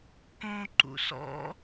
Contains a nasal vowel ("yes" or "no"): yes